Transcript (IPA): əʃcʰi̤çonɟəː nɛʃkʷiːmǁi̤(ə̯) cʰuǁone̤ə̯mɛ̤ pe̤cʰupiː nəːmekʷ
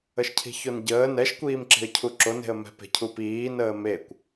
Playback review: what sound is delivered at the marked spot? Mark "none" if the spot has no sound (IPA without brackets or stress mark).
ə̯